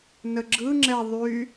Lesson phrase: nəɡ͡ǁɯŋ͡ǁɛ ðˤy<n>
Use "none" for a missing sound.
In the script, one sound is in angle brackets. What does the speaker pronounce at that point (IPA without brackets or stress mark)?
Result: none